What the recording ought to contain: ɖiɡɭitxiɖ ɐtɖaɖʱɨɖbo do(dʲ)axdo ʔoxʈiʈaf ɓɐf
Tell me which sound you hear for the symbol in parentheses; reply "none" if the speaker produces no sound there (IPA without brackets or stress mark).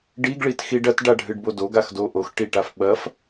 ɡ